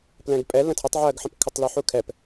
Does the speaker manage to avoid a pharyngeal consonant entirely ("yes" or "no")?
no